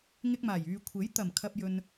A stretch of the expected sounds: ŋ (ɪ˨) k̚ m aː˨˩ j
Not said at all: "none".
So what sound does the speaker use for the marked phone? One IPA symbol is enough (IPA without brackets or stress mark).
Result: ɪ˧